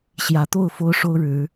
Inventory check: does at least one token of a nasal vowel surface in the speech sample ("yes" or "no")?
no